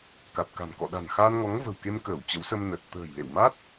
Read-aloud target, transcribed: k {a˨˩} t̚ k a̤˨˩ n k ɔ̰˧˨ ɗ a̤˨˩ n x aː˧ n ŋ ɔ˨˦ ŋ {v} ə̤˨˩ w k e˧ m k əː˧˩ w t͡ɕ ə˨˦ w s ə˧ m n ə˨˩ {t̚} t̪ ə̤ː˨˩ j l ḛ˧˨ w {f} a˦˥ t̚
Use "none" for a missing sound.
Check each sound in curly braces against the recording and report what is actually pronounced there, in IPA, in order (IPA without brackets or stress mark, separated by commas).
a˨˩, v, t̚, m